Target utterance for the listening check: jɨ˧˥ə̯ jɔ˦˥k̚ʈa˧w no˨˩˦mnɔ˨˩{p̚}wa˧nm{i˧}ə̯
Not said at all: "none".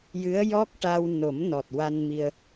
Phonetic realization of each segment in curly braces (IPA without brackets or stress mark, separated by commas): t̚, i˧